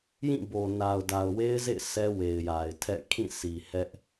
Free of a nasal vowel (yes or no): no